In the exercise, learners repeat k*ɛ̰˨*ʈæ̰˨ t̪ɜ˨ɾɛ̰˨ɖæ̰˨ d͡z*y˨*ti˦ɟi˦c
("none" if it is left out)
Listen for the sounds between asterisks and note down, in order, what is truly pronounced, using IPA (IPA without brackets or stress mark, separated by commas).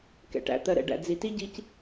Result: ɛ̰˨, i˨